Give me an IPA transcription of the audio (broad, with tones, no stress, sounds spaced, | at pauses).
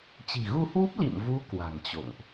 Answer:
t͡ɕ i̤˨˩ ɣ u˧ h w u˦˥ p̚ l ḭ˧˨ m v u˨˦ k w a̤˨˩ ŋ t͡ɕ o̰˧˨ ŋ ʔ